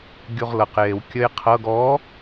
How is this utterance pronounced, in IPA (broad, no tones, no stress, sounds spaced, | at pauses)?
ɡʲ u ʁ l ɤ q j e w kʲ ə j qʰ ɤ ɡ ɔ